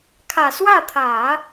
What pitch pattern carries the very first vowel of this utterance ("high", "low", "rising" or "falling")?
low